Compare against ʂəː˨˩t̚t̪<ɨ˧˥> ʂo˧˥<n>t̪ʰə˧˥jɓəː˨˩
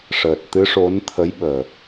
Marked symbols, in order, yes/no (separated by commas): yes, yes